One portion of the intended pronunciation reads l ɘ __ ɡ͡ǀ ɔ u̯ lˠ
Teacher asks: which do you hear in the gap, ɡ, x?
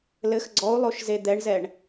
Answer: x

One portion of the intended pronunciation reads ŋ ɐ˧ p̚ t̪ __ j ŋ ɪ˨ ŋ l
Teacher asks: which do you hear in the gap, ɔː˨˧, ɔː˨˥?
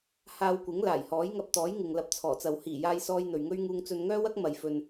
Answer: ɔː˨˥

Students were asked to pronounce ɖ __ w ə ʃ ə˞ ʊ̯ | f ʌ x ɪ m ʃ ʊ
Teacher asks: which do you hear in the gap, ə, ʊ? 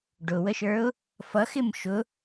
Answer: ʊ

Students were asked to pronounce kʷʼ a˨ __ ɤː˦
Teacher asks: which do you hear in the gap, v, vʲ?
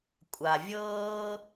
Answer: vʲ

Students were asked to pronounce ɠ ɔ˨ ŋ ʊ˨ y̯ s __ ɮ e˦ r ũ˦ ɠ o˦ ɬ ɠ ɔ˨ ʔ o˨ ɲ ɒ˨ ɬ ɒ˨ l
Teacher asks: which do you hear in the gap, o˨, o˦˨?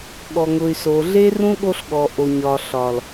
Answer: o˨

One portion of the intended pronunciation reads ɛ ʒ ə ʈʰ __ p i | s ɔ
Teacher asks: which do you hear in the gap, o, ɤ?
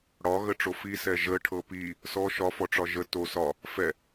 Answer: ɤ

